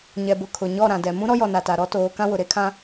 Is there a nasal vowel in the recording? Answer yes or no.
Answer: yes